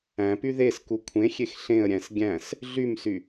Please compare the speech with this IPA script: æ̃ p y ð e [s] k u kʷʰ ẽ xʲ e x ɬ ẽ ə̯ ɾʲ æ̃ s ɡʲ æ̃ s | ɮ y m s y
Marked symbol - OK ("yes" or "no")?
yes